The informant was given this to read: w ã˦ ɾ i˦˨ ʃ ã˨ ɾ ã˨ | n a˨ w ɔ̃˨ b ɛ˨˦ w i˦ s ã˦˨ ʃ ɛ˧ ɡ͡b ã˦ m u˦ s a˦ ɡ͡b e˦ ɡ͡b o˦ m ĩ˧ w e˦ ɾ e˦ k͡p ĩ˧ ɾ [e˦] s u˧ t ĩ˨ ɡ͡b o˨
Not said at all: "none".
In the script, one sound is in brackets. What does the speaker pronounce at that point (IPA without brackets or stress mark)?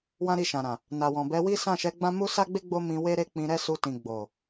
ɛ˦